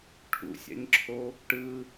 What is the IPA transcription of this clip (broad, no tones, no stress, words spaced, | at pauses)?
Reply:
ʈʰṵsʲa̰ɲǁʰo | ʈɯ